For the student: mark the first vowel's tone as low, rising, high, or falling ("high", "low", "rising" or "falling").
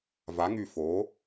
rising